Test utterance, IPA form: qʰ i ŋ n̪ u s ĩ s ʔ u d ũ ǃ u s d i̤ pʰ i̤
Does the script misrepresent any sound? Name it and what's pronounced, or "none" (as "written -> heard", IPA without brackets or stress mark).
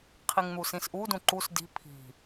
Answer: none